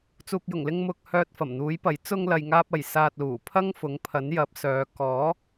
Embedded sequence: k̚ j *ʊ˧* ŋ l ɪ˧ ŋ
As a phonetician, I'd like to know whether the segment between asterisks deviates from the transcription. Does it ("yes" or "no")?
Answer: yes